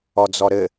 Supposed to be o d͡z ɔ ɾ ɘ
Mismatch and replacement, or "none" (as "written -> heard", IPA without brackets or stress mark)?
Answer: o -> ɔ